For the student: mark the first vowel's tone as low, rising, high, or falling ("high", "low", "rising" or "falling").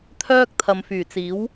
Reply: high